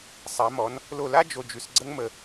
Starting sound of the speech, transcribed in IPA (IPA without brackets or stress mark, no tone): sˤ